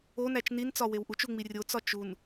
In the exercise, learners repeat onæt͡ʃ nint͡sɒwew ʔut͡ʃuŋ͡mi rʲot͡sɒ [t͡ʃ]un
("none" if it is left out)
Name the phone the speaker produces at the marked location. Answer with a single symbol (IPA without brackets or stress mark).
t͡ʃ